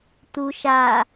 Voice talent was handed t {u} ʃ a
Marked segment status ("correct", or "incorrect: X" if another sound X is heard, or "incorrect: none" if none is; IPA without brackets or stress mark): correct